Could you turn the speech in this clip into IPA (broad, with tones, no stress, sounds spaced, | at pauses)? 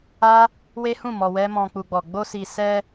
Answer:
a˦ | w e˦ h ũ˦˨ m ɔ˧ w ɛ˦ m ɔ̃˧ k͡p u˧ ɡ͡b ɔ˨ ɡ͡b o˧ s i˨ s ɛ˧